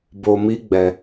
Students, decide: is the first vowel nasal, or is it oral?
oral